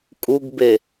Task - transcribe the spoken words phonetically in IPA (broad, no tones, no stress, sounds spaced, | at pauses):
kʼ u ɡ b e